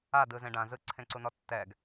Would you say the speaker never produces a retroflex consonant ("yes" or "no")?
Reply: no